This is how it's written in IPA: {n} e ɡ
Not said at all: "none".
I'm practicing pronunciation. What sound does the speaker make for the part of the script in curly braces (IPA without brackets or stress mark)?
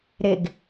ɾ